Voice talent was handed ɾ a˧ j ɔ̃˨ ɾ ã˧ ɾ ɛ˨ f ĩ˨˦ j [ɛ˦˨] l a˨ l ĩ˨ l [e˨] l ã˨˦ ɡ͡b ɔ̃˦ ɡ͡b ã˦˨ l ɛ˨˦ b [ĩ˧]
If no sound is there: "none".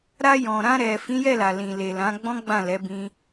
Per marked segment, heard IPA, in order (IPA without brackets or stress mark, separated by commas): ɛ˦˨, e˨, ĩ˦